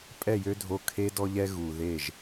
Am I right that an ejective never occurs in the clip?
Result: no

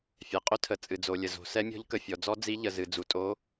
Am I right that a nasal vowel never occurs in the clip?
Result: yes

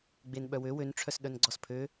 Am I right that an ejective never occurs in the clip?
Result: yes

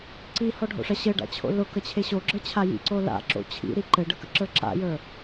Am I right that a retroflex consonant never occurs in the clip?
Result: no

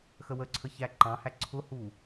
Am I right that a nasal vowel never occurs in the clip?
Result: no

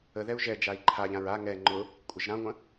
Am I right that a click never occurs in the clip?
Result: no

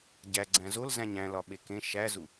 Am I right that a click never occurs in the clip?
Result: no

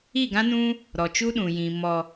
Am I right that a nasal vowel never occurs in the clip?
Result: no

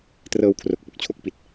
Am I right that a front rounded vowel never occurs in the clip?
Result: yes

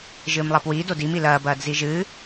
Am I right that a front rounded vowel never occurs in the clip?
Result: yes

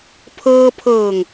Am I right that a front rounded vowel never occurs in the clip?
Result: yes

